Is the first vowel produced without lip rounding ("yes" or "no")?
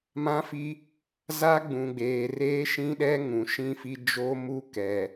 yes